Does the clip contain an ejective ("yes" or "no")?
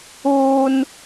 no